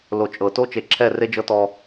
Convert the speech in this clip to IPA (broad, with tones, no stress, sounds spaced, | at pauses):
l o˨ t͡ʃʼ ɤ˨ t o˦ t͡ʃ e˨ ǁʰ ɛ˦˨ r e˦ d͡ʒ ɤ˦ t ɔ˦